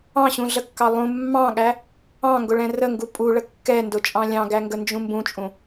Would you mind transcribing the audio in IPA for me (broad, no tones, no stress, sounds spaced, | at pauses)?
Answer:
ɑ̃ ɕ ũ ɮ ə kː ɑ lˠ ũ mː ɑ̃ ɠ æ | ɑ̃ ŋ ɡ ʊ ɭ ɛ̃ r ə ŋ ɡ u pʼ u ɭ ə kː ɛ n d ʊ t͡ʃʼ ɑ̃ lʲ ɑ̃ ɡ æ ŋ ɡ ə n d͡ʒ ũ m b ũ t͡ʃʼ ũ